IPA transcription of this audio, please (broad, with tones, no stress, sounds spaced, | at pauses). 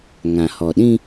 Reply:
ŋ ã˨ h ɔ˨ ɗ ĩ˦